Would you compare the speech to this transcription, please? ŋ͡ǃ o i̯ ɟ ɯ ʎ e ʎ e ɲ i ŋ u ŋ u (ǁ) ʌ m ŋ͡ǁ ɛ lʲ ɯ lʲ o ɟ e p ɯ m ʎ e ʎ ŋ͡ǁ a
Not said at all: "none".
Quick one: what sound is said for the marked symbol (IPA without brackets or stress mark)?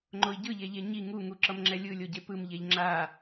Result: ǁ